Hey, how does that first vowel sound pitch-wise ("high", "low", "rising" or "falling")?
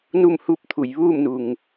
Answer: falling